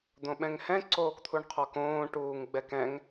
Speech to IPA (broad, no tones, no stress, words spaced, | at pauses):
d̪õɓɛ̃ŋhɛ̃ ǀoːkt̪ʰuɳqʰɔkõː ʈuːŋɡ͡bɛkɛ̃ŋ